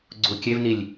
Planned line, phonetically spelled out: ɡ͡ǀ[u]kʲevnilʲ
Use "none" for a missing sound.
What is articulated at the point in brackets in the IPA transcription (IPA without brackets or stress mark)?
u